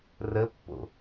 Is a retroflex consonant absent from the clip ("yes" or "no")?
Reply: yes